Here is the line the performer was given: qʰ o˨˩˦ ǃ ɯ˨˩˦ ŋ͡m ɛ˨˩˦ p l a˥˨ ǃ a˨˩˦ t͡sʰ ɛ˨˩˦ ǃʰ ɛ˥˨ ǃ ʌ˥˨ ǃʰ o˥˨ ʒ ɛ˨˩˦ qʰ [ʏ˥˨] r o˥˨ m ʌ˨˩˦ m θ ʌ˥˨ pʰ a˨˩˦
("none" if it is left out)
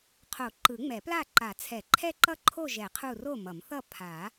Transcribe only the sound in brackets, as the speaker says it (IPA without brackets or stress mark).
u˥˨